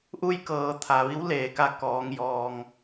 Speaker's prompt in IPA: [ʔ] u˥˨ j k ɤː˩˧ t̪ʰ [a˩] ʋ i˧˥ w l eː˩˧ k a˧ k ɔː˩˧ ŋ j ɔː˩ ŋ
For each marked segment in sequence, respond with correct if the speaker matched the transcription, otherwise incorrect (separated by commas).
correct, correct